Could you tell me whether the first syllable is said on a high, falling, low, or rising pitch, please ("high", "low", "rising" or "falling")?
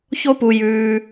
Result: high